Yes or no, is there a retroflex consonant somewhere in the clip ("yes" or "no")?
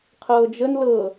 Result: no